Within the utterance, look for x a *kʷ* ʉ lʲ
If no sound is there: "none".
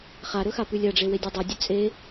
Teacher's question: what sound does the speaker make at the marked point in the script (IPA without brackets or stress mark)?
p